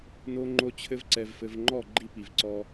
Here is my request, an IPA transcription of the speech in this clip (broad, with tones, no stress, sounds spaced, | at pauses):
n o˦ ŋ͡ǃ o˦ t͡ɕʰ ɘ˦ v ǀ ɛ˨ v f ɘ˨ v ŋ͡ǃ ɔ˦˨ ɡ͡ǃ i˦ p i˨ v ǀ ɔ˦